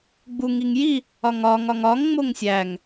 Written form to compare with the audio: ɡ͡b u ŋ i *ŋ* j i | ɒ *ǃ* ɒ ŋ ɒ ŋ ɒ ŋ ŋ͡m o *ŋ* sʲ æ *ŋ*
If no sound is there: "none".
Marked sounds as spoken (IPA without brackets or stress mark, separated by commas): ŋ, ŋ, ŋ, ŋ